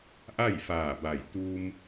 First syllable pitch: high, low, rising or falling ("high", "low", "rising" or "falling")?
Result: falling